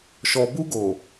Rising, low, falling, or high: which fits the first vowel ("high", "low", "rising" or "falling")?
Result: low